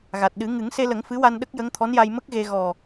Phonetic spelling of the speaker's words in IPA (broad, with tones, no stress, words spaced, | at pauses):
ɣa˨˩t̚ɗɨ˨˩˦ ŋɨ˨˩˦ŋse˧lə˨˩˦ŋ fɨ˧˥wa˧n ɗə˦˥k̚jə˧˥ŋt̪ʰɔ˧˥nja˧j mə˦˥k̚ɣe˧ ɣɔ˨˩